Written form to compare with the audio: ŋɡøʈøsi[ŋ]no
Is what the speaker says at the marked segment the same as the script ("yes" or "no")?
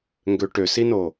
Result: no